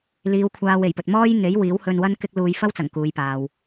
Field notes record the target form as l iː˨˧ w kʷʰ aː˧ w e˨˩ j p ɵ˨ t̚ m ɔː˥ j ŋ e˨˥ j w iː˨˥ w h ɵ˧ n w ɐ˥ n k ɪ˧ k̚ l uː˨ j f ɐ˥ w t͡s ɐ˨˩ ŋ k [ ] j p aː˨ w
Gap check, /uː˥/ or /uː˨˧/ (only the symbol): uː˨˧